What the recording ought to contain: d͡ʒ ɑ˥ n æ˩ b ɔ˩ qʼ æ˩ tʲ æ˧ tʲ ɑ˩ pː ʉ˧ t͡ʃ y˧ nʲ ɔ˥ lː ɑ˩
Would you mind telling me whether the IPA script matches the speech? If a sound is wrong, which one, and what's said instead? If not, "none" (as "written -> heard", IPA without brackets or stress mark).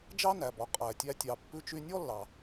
none